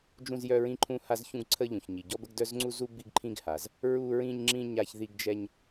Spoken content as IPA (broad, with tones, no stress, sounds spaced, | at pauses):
d͡ʒ ũ˥ z j œ˥ ɹ ĩ˥ ǃʰ ũ˥ h a˥ z ç ũ˥ ɡ ǀʰ ə˥ ʎ ũ˩ ç ɲ i˩ ɟ ɔ˥ b ə˥ ɡ d œ˥ z ŋ͡ǀ u˥ z u˥ b i˥ ɡ ǃʰ ĩ˥ ɡ h a˩ z | ɹ u˥ ɹ ĩ˥ ɲ ŋ͡ǁ ĩ˥ ɲ a˥ ç ð i˥ ɡ d͡ʒ ɛ˥ ɲ